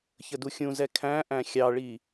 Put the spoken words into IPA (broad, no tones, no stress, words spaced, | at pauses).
çəduxʲũzɛ kʰæ̃ ʔæ̃xʲɑɭi